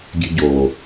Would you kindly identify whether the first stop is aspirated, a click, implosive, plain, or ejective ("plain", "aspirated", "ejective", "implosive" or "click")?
plain